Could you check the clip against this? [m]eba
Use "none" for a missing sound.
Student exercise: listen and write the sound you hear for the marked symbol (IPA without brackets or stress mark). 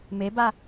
m